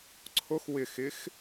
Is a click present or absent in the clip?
present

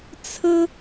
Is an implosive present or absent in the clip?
absent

